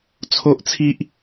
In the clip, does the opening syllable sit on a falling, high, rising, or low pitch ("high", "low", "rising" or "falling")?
high